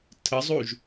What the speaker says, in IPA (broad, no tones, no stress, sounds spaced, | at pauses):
tʰ ə zˤ u ʒ